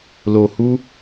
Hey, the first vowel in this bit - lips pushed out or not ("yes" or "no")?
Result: yes